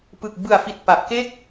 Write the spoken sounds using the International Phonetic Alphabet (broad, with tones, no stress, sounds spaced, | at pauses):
p ɯ˨˩ k̚ b ɯ˨˩ a̯ f i˨˩ t̚ p a˨˩ ʔ k e˥˩ k̚